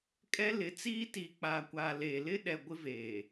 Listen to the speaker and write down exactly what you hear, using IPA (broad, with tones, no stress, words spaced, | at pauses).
kʼɛ˦lɪ˨˦t͡siː˦ tiː˨k͡paː˨kʷaː˨ leː˨ lɪ˦ɗɛ˨ ɡʷɪ˦veː˨